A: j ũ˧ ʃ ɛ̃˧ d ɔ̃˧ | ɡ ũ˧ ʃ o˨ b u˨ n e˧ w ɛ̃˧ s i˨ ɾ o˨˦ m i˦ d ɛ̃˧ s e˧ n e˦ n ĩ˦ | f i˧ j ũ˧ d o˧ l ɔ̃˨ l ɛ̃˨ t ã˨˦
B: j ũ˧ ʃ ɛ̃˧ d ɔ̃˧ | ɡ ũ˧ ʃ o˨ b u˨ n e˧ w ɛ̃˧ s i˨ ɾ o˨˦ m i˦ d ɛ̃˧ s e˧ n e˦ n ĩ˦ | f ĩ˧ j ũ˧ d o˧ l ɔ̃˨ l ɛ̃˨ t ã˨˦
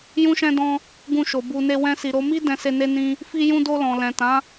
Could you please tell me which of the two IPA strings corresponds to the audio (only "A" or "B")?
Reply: A